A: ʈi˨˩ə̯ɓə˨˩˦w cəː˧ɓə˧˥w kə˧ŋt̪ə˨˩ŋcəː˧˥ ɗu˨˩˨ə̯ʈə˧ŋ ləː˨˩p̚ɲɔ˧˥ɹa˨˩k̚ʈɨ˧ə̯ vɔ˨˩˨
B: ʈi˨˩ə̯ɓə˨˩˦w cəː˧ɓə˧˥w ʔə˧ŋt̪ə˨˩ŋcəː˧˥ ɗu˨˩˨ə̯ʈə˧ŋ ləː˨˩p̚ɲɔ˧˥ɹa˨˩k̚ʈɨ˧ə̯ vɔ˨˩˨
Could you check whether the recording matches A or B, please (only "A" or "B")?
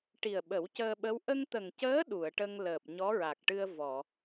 B